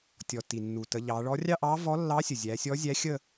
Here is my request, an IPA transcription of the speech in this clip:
tʲɔ˩ ti˩nːu˩tə˩˧ ʎɑ˩˧ɭɔ˧˥ rʲɑ˥˧ʔɑ˧˥vɔ˧˥lːɑ˧˥ sʲə˩zʲæ˩˧sʲɔ˧˥ zʲæ˧˥xʲə˥˧

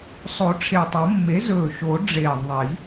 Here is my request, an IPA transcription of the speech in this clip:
sˤo˨˩˦ʈ͡ʂʰe˨˩tˤo˨˩˦mːe˩˥ zɵː˨˩ʃo˨˩˦ɖ͡ʐeː˨˩ ðˤi˨˩˦

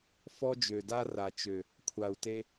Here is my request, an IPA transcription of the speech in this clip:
fɔ˦d͡ʒø˨da˦ ra˨t͡ʃø˨ | kʷʰa˨u̯te˧

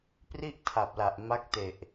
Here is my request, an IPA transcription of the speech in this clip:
pri˥˩ʔ tʰa˨˩p̚la˨˩ʔ ma˦˥k̚te˨˩ʔ

